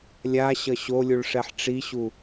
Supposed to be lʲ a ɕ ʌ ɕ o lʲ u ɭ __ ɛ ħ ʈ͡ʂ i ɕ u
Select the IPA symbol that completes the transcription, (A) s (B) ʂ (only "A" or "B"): B